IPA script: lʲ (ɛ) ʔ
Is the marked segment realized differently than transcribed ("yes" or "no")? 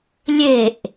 yes